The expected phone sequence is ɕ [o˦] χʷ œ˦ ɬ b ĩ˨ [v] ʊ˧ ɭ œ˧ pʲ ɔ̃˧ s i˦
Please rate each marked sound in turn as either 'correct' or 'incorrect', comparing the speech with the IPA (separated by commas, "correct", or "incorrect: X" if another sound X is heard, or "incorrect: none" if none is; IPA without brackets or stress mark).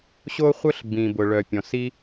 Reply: correct, incorrect: b